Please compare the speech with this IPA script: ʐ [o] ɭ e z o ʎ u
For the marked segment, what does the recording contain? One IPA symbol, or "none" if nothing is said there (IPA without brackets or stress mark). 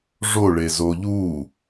o